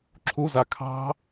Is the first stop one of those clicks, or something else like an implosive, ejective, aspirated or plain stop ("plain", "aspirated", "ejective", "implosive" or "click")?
click